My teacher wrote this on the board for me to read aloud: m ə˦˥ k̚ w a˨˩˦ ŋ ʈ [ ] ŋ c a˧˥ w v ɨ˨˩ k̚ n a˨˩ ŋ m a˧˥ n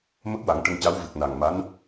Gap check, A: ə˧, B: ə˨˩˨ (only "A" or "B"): A